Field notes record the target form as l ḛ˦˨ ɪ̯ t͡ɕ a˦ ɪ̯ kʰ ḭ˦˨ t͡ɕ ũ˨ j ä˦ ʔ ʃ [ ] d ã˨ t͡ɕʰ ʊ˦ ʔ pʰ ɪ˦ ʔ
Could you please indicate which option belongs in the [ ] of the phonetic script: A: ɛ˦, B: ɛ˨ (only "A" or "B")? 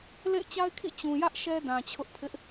A